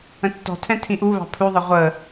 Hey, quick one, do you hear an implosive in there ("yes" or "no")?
no